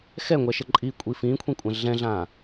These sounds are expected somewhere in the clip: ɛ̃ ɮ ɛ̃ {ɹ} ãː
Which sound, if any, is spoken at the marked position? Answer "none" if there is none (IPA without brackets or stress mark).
ɮ